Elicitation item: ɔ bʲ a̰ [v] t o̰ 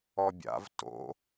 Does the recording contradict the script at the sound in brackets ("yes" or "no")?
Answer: no